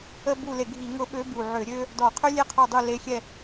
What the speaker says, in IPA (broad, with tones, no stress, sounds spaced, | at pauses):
ə˥ b u˦˨ l e˧˩˧ ɡʱ i˧˩˧ ŋ ʊ˧˥ ɓ ø˧˥ b u˨˩ ʕ ø˧˩˧ ɾʲ ø˥ | d ɔ˨˩ qʰ ø˥ lʲ e˥ qʰ ɔ˦˨ dˤ u˦˨ l e˧˥ xʲ ɛ˦˨